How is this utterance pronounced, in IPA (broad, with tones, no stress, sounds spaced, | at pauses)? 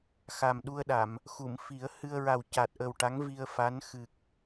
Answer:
x a˨˩ m ɗ u˧ ə̯ ɗ a˨˩˨ m | x u˨˩˨ m f i˨˩˦ ə̯ h ɨ˧ ə̯ ɹ a˨˩ w c a˨˩ t̚ ʔ ə˨˩ w ʈ a˧˥ ŋ v i˧ ə̯ f a˧˥ n x ɨ˨˩ k̚